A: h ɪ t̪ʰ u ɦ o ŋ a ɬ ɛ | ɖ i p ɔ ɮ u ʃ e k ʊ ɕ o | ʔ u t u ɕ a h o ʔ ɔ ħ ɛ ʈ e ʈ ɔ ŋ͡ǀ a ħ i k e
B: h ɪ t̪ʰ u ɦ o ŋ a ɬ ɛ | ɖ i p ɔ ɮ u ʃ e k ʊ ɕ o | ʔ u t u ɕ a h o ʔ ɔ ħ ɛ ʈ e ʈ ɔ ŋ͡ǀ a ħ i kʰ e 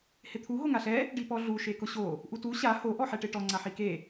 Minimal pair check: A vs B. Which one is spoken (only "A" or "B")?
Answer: A